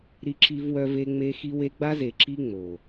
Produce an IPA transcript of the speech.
ɾi˦ǁi˦vwœ˦ve˦ ŋ͡me˦ xi˦we˦ ɡ͡ba˦ze˨ǁi˦ ŋ͡mo˨

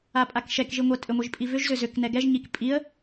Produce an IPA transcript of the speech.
apʼakʃɛkʒi ŋʷɛtʼʏŋʷiʒ pʼivʏʒzʏ zʏknɛ ɡɛʒɲik pʼiə̯

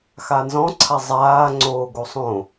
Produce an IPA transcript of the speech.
xanzɔ̃ ǀʰazˤaː ŋ͡ǀoːɡosˤõ

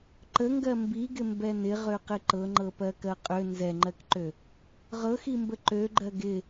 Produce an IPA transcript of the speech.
ǃəŋɡɜ mbiɡɪmbɛ nɪʁøqɪ ǃɤŋ͡ǃɤpɜkɜ qʼø nzɛŋ͡ǃɜkǃø | ʁɤximbə ǃøɡ͡ǃɜ ɡɪ

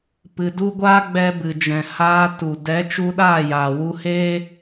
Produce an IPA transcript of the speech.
pɨ˧du˦ ɡʷaː˦ɡ͡bɛ˧bɨ˨ d͡ʒɛ̃˨ haː˧tu˨ dɛ˨˦ t͡ʃu˧ɗaː˦˨jaː˨ wu˧he˦

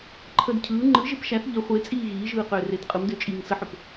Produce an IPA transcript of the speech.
ǃʰəd cʰɯː ŋ͡ǃɯʒep ʃæθ ʎə χʷet͡sʼiː ɣiːʒɯːqʏːret qʼɯmdʏːt͡ʃʼiːŋ səħʏp

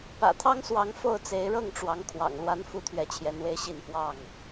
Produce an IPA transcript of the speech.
pä̰˨˩ t̪ʰɑ˦ŋswɑ˨˦ŋ fo˥˨ʊ̯t͡se˨˦ɪ̯ɻɤ˥˨ŋʈ͡ʂwɑ˨˦ŋ kʰwɑ̰˨˩ŋlwa˨˦n fu˦t̪ʰɥɛ˨˦t͡ɕʰjɛ˨˦nwe˦ɪ̯ ɕi˥˨nfwɑ˥˨ŋ

